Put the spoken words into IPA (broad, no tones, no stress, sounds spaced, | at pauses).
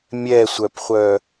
mʲ ɛ sʷ œ p χʷ œ